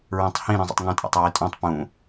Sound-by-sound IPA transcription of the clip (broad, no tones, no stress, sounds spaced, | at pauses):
ɹ ẽ tˤ h ĩ ɾ ĩ zˤ o̰ tˤ ŋ õ tʼ a̰ tˤ ɹ i tʼ õ tˤ p ũ